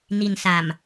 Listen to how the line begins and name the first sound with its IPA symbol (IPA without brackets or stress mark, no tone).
n